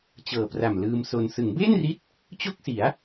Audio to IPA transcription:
t͡ɕ ɤː˨˩ p r a˨˩ m l ɯː˧ m s o˧ n s ɯ˩˦ ŋ b eː˥˩ n r i˦˥ t̚ | t͡ɕ o˥˩ k̚ s i˩˦ a̯

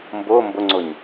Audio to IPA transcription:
m b ʊː m b ʊ ŋ͡ǀ ʊ ɲ

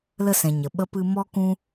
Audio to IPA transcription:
l ə˦ s ɛ̃˨ ɲ ə˨ ɓ ə˦ p ɨ˧ m ɔ˦ k ũ˦

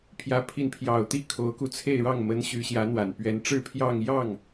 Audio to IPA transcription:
pʰ j ä˧˥ pʰ i˧˥ n pʰ j ɑ˨˩ ʊ̯ t̪ i˥˩ kʰ o˧˥ ʊ̯ k u˧ t͡sʰ e˥˧ ɪ̯ ɻ ɑ˥˩ ŋ m ə˧˥ n ɕ y˧˥ ɕ j ä˧˥ n̪ w a˨˩ n p ɥ ɛ˧˥ n ʈ͡ʂ ɻ̩˥˧ pʰ j ɑ˥˧ ŋ j ɑ˥˩ ŋ

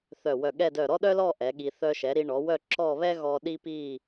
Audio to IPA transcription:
θ œ˧˩ w œ˧˩ ɠ ɛ˥˧ d œ˧˩ ɾ ɔ˥ ɗ œ˥ l ɔ˥˧ ʔ ɛ˩˧ ɠ i˧ θ œ˧ ʃ ɛ˩˧ ɾ i˧ ɳ ɔ˩˧ w œ˥˧ ǁ ɔ˥˧ β ɛ˥ ɣ ɔ˧ ɗ i˥ p i˥˧

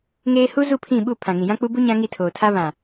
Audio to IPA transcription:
ŋ eː˦ h u˦ z u˦˨ pʰ ĩ˦˨ ɓ u˦˨ pʰ ã˨ ŋ ĩ˨ j ã˦ k͡p u˦ b u˦ ɲ ã˦ ŋ i˦˨ tʰ oː˨ tʰ a˦ β ã˨

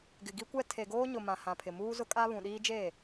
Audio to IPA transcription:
ɡ ɪ˨ ɡ i˦ kʷ ɛ˦ tʰ e˨ ɡ oː˦ ɲ ʊ˨ m ã˨ h ã˨ pʰ ɪ˨ m uː˦ z ʊ˦ kʼ a˦ β ũ˨ ɗ iː˦ d͡ʒ eː˦˨

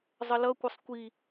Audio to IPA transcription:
zˤ ə l ʌ kʷ ə sˤ kʷ i

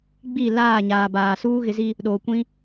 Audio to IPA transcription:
ɡ͡b i˦˨ l aː˦˨ ɲ aː˨ b aː˨ s uː˦ ɣ ɪ˨˦ z i˦ | ɗ oː˨ kʷ ĩ˦

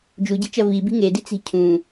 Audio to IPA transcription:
d͡ʒ u ɟ i̤ t͡ʃ ɐ v i b i̤ ŋ e d i t͡s i̤ cʰ ũ

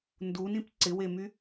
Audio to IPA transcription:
n d u n ĩ p ǀ ɪ w e m y

